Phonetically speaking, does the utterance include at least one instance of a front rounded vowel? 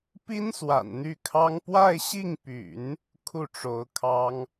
yes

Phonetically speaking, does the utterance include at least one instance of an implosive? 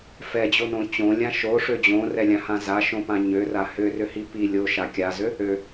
no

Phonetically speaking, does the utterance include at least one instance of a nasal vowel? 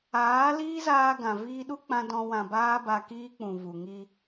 yes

